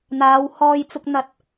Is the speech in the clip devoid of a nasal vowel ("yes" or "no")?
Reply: yes